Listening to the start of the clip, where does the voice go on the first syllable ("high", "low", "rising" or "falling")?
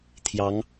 rising